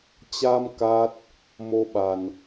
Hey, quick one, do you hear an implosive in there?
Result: yes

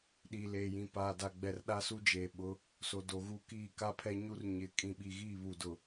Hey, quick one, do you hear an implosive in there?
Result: yes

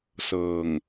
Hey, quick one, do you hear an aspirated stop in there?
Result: no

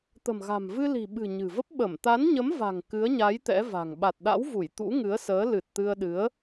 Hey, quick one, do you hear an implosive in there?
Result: yes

